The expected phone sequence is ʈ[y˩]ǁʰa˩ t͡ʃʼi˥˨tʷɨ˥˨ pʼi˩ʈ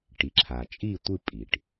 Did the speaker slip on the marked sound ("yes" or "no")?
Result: yes